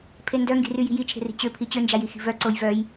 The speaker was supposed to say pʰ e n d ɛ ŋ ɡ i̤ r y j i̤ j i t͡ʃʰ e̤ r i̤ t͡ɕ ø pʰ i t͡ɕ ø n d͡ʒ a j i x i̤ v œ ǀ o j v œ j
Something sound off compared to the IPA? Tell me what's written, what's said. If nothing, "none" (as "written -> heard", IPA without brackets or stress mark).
ɛ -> œ